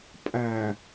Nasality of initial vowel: oral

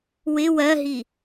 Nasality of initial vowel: oral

